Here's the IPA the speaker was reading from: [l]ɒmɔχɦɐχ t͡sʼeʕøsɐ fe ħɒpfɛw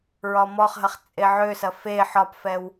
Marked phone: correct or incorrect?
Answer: incorrect